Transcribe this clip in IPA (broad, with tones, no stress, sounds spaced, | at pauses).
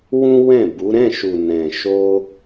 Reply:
w ũ˦ w ɛ̃˦˨ b u˨˦ ɾ ɛ̃˦˨ ʃ u˨ n ɛ̃˨ ʃ o˧